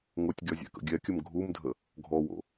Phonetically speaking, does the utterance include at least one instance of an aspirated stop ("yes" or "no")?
no